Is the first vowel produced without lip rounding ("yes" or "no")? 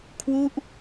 no